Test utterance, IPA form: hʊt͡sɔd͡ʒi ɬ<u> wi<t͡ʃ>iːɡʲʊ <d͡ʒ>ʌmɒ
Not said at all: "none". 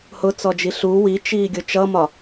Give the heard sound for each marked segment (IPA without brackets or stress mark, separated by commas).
u, t͡ʃ, t͡ʃ